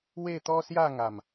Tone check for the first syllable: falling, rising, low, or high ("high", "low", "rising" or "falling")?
falling